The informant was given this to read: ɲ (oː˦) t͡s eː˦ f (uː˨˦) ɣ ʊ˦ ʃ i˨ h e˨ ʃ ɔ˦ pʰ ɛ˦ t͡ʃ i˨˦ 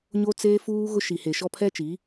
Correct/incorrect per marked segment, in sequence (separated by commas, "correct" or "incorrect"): incorrect, incorrect